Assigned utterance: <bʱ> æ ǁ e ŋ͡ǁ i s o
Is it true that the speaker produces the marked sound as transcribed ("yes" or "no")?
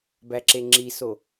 no